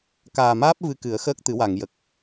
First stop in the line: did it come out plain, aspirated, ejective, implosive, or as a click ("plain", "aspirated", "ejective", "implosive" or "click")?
plain